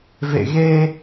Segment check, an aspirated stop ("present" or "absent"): absent